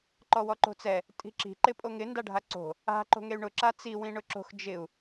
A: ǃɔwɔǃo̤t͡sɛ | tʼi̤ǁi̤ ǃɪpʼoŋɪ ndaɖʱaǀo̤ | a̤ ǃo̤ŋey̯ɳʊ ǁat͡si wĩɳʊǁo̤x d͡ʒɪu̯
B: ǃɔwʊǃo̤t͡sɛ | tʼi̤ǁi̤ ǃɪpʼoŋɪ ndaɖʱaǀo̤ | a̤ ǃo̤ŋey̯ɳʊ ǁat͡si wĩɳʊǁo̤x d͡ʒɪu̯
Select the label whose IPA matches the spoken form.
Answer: A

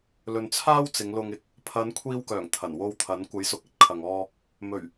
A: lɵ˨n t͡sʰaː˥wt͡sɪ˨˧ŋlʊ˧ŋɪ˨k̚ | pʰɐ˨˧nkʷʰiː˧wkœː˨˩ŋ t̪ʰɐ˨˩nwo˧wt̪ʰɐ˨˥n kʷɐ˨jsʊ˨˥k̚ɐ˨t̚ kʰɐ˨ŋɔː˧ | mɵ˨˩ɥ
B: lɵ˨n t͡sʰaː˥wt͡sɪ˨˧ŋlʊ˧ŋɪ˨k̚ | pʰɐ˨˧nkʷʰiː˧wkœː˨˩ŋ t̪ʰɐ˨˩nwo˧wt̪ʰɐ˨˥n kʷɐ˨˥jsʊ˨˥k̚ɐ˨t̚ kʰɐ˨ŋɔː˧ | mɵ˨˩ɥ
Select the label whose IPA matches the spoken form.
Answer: B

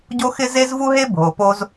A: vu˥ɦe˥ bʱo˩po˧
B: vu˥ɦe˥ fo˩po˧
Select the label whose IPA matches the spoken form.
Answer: A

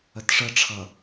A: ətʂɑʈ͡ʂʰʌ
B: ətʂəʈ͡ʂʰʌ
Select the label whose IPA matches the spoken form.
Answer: B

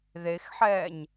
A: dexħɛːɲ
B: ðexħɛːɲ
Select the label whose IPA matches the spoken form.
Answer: B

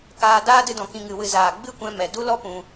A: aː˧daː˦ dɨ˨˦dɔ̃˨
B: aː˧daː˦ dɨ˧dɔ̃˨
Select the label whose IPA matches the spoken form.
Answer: B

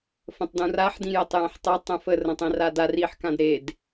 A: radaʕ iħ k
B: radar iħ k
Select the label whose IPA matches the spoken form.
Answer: B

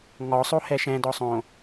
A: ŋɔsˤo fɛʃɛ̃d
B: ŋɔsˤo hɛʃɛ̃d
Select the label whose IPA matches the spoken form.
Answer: B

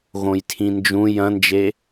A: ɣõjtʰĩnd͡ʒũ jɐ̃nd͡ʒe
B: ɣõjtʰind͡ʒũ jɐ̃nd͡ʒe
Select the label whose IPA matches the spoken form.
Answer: A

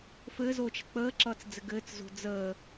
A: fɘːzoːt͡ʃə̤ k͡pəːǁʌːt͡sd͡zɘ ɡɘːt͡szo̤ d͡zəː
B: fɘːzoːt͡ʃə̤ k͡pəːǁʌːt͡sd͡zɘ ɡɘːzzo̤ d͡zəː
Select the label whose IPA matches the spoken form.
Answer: A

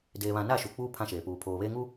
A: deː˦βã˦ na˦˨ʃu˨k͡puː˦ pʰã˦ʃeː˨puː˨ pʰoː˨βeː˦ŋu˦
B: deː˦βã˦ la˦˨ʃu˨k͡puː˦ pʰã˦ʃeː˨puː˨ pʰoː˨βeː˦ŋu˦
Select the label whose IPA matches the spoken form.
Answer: A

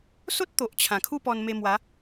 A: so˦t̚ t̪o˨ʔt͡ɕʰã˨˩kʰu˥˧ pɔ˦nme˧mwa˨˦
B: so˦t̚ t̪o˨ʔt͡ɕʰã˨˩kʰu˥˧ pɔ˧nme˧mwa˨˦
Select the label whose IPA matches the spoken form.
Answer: B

